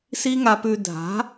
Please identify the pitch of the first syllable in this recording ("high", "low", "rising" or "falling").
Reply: high